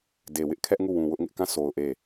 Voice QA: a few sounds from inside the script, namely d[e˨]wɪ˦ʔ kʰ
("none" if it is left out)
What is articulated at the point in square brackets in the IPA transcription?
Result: e˨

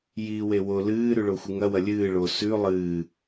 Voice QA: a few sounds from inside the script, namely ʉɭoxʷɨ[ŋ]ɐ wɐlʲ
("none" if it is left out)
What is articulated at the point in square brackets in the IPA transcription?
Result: ŋ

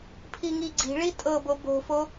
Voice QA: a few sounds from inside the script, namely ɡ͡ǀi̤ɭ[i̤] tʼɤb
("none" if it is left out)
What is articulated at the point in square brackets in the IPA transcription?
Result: i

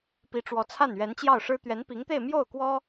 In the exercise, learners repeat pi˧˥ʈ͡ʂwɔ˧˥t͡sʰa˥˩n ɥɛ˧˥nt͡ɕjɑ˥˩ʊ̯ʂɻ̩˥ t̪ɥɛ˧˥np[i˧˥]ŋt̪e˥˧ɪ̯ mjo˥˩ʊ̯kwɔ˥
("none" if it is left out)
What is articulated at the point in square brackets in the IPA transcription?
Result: i˧˥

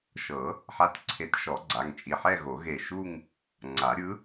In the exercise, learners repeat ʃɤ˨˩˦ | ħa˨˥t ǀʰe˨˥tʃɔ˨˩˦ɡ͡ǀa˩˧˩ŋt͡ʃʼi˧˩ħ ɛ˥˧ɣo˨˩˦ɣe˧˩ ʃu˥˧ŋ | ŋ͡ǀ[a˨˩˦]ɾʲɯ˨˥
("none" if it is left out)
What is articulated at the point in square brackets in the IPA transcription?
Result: a˨˩˦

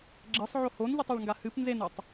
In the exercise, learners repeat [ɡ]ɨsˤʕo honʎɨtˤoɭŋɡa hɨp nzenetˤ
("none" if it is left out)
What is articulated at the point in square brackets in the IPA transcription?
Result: ɡ͡ǁ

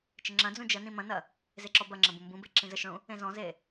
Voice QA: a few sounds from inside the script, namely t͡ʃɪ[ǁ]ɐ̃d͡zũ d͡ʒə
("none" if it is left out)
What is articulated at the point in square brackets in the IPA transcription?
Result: ŋ͡ǁ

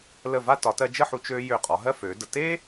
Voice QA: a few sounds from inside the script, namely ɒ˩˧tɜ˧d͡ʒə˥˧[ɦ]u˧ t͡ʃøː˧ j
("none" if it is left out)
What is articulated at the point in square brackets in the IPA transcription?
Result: ħ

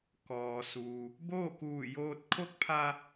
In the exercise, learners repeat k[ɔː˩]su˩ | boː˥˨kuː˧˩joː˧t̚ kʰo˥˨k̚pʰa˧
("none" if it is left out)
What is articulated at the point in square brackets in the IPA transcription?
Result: ɔː˩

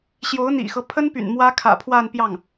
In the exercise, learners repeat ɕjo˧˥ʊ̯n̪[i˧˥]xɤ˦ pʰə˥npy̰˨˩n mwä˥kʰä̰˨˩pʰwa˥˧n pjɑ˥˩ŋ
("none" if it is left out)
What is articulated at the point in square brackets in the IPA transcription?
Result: ḭ˨˩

